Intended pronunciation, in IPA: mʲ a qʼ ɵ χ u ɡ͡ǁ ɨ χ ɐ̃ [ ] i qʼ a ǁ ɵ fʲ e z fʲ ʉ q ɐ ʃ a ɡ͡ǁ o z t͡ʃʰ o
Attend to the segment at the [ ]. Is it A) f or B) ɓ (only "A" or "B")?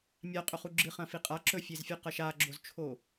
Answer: A